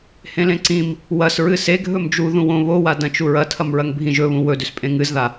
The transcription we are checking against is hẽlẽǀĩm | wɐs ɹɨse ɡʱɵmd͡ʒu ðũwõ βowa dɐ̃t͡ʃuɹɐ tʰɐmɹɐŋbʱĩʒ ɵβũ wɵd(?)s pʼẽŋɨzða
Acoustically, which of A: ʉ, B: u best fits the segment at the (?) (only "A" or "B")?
A